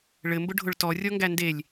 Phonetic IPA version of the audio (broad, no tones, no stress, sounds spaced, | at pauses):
ɭ ɘ m b ʊ ɖʱ ʊ ɭ t ɔ rʲ ɔ ŋ ɡ æ n d e lʲ